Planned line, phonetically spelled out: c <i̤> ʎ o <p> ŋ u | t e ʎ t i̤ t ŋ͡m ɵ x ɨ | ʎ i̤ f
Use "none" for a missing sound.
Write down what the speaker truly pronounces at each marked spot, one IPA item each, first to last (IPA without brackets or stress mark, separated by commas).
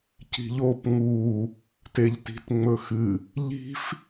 i̤, p